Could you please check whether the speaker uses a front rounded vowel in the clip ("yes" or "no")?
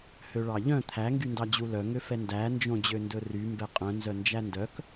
yes